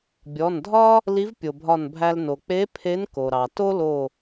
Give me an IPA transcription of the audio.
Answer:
bʲ ɔ˩˧˩ n dʱ ɒ˥ | l i˧˥ v pʲ o˩ bʱ ɒ˧˩ n bʱ æ˧ l n o˩ k͡p e˧˥ pʰ e˧˥ n k o˩ ɾ ɑ˩ t o˥ l o˧˩

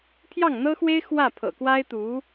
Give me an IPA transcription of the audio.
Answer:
pʰ j ɑ˥˩ ŋ n̪ ɤ˥ x w e˥ ɪ̯ x w ä˥˩ pʰ ɤ̰˨˩ k w a˥ ɪ̯ t̪ u˧˥

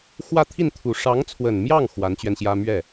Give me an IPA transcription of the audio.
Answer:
x w ä˥˧ t̪ʰ i˥˩ n t̪ʰ u˨˩ ʂ ɑ˧˥ ŋ t͡sʰ w ə˨˩ n m j ɑ˥˩ ŋ x w a˧˥ n t͡ɕ ɥ ɛ˧ n ɕ j ä˥ m ɥ ɛ˥˩

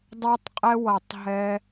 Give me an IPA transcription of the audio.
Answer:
dˤ ɛ˧ tˤ qʼ ɛ˧ w ʌ˨ tˤ ɦ ɛ˧

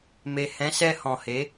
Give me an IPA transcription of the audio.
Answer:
m e˨ h ɛ̃˨˦ s ɛ˧ h ɔ̃˨ h e˨˦

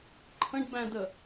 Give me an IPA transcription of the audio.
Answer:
ǃʰ ə̃ ɖ b æ̃ d ə

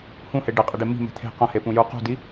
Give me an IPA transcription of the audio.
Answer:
h ũ h e ɖ e qʼ i ɖ e m i̤ m e̤ t̪ʰ e̤ q ɐ̃ h e p ũ j u q ṳ d i

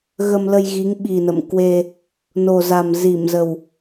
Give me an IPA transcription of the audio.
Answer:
ɣ ə˧ m l ə˧ j ɣ i˨˦ ŋ ɓ i˨˩ n ə̰˧˨ m k w e˧ | n o˨˩ z a˨˩ m z i˧˩ m z ə˨˩ w

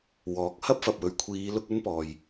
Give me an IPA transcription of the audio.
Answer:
w ɔː˨˥ k̚ h ɐ˥ p̚ f ɐ˨ p̚ w ɵ˨ ɥ kʷʰ iː˨˧ l ʊ˥ k̚ ɵ˥ n p ɔː˨ j

